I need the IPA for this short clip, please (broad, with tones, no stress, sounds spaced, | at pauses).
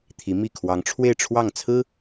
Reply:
t̪ʰ i˧˥ m i˥˩ kʰ w ɑ˧˥ ŋ ʈ͡ʂʰ w e˥˧ ɪ̯ ʈ͡ʂʰ w ɑ˥˩ ŋ t͡sʰ ɹ̩˥